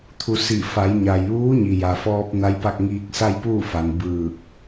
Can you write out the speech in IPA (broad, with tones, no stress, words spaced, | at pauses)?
t̪ʰu˩˧ si˧˩ fa˩˧jɲa˩j ʋuː˧˥ɲi˩ja˩fɔː˧p̚ na˧˥jpa˥˨k̚ ŋiː˧k̚sa˥˨jpuː˥˨fa˩n bɯː˧˩k̚